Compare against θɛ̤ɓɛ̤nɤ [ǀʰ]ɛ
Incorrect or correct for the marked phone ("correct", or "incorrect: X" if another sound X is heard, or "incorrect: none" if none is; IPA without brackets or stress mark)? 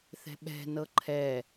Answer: incorrect: ǃʰ